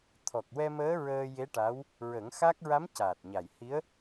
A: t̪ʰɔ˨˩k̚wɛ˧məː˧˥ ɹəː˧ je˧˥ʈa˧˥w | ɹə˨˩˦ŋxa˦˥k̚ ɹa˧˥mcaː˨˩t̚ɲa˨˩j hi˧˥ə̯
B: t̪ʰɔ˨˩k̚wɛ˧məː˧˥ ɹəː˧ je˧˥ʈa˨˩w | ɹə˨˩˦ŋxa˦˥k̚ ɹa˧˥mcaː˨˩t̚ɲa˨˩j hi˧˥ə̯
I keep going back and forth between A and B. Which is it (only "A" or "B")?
A